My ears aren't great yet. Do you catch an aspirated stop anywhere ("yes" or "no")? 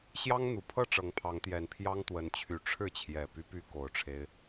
yes